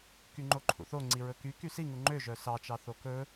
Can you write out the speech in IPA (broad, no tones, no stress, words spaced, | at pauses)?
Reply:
kyŋ͡ǃoǃʰṵθo ŋ͡ǀiɹɵky kysiŋu ŋ͡ǃø ʒœsɑt͡ʃɑ θokɵ